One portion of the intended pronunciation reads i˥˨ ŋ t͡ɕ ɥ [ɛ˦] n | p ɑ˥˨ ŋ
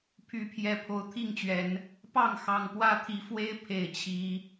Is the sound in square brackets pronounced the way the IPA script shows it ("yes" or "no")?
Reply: no